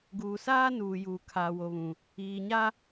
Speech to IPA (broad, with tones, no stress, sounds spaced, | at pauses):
ɡ uː˨ s aː˦ n uː˨ j uː˨ kʰ aː˨ w o˨ β ũ˨ | iː˨ ɲ a˦